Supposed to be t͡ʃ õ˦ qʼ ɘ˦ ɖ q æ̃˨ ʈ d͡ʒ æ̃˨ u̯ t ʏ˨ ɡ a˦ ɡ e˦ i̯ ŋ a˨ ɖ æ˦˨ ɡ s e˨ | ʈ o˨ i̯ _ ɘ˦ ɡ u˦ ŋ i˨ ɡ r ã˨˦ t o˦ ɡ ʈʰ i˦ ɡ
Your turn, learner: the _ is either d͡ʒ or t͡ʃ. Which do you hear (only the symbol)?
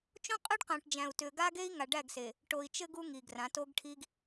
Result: t͡ʃ